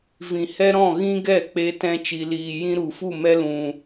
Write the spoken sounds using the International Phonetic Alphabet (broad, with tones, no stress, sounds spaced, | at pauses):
v ĩ˨ h ɛ˦ ɾ ɔ̃˦˨ ɣ ĩ˦ ɡ ɛ˦˨ k͡p e˧ t ɛ̃˧ t͡ʃ i˨ l iː˨ j ĩ˦ ɾ u˨ f u˦˨ m ɛ˧ l ũ˨